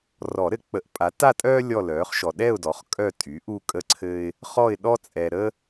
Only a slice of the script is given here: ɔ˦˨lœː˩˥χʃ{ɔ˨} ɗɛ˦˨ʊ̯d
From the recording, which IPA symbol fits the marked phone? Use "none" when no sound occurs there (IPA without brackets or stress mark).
ɔ˨